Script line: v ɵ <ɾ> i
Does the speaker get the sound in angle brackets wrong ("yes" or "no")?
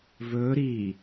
no